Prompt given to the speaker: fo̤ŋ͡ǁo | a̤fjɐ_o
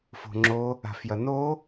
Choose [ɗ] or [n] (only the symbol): n